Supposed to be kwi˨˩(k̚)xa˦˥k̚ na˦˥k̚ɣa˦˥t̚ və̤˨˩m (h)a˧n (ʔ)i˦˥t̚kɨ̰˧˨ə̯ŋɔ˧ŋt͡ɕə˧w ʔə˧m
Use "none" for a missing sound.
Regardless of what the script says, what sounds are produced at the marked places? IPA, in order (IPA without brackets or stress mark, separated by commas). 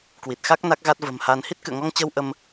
t̚, h, h